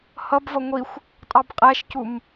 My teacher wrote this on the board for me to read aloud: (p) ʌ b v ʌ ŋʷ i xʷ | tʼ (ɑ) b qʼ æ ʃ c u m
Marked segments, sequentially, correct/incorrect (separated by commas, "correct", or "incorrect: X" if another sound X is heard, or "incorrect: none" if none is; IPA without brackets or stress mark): incorrect: h, correct